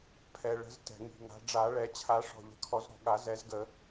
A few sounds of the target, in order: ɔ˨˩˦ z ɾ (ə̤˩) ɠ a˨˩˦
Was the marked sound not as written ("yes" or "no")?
yes